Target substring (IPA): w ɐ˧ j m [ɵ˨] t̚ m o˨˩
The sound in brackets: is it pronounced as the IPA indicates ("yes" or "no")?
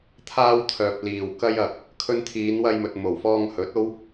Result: yes